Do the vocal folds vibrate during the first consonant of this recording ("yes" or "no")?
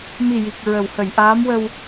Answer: yes